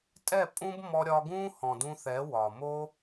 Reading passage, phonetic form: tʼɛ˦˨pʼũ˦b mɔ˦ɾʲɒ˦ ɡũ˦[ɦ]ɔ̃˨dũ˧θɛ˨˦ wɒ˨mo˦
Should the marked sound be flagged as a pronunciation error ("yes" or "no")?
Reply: yes